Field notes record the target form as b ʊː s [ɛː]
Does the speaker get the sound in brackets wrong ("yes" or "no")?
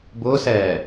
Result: no